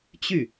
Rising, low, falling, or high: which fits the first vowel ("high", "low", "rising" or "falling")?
falling